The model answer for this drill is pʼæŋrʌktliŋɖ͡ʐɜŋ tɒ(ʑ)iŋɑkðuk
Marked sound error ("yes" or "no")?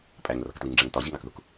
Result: no